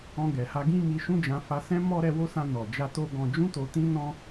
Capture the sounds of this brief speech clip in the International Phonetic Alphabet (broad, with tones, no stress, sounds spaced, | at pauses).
ɔ̃˧ ɡ ɛ˨ h a˧ ɡ ĩ˦ m i˧ ʃ ũ˦ d͡ʒ ã˧ f a˧ s ɛ̃˦ m ɔ˦ ɾ ɛ˧ w o˦ s ã˧ n ɔ˨ d͡ʒ a˧ t o˧ ɡ ɔ̃˨ d͡ʒ ũ˧ t o˨ t ĩ˧ n ɔ̃˦